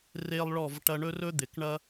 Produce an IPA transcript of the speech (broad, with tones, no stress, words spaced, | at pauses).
re˧lˠɭɔ˧˩v ʈɐ˧ɳɵ˥rɵ˥ d̪ɪ˩˧kɳɐ˥